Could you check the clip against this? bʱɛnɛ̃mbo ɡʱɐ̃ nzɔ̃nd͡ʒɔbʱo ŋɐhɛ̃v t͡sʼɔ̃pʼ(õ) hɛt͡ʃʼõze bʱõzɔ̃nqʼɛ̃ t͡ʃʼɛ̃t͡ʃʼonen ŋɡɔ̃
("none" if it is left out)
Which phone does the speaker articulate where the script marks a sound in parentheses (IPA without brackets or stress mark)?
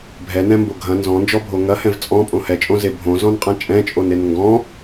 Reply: õ